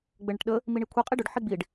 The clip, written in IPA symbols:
ɡ͡b ɘ ɳ ɘ ʈ ɗ ə | m i ɳ i kʷʰ i qʼ i ɖ ʏ ɖ ħ i ɡ͡b i ɖ

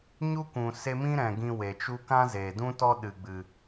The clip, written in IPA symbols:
ɲ u˦ kʷ ũ˨ s e˧ m ĩ˦ ɾ ɛ̃˨ ɡ ĩ˧ w e˨ t͡ʃ u˦ k ã˦ z eː˨ d ũ˦ t ɔ˦ ɗ ɨ˨ ɡ͡b ɨ˨

